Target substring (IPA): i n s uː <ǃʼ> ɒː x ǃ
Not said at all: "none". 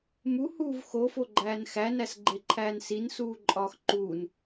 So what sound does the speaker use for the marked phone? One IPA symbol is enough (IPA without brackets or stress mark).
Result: ǃʼ